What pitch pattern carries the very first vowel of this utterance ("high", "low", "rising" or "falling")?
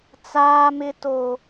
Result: high